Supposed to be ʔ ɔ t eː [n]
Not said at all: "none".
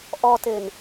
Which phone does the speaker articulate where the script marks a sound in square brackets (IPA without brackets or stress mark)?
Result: n